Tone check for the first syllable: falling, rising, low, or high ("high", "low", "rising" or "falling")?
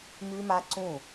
high